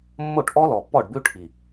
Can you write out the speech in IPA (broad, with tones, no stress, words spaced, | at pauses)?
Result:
mːo˦˨ʈʔɔ˦lɔ˨ pːɔ˦˨ɖbʉ˦ʈʰi˨